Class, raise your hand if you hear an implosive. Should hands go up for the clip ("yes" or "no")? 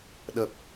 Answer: yes